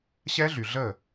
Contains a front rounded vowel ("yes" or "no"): yes